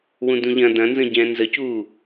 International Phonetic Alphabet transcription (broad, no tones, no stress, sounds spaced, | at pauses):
w ũ d ũ ʎ ɐ̃ d ɐ̃ n z ə̃ ɟ ɛ̃ː n z ə c uː